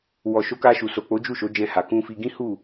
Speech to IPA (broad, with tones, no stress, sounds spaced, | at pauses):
w ɔ˨ ʃ o˨˦ k a˧ ʃ u˨ s o˨ k͡p o˨˦ d͡ʒ u˦˨ ʃ o˨˦ d͡ʒ ɛ̃˧ h a˨ k ũ˧ f i˧ ɡ ĩ˦ h u˦˨